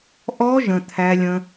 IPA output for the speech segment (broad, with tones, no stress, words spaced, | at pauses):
ʔɔ˦˥ ʒə̃˩˧˩t̪ʰæ˦˥lʲə̃˦˥